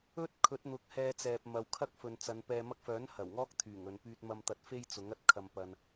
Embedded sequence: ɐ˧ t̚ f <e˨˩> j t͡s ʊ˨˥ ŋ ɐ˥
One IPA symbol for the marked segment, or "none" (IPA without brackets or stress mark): e˥